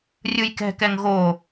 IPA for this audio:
rʲ ɯ j k ɛ̤ k ɛ ŋ ɣ o

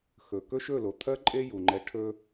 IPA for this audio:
x ɵ˨ k ɵ˦ ʃ ɵ˦˨ l o˨ t̪ʰ ɜ˦ ǃʼ e˦ j u˧ ŋ͡ǃ ɛ˦ ʈʰ ɵ˧

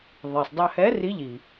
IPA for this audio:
ðˤ i˩ sˤ dˤ œ˧ h ɛ˧˥ r i˧˥ ʎ i˩

